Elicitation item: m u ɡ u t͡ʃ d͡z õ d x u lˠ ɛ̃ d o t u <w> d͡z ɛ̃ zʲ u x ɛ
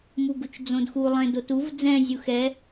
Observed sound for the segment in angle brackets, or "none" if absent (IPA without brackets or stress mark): v